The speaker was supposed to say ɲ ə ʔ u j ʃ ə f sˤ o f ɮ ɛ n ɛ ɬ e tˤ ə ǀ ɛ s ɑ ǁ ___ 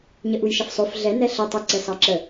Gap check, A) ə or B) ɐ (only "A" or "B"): A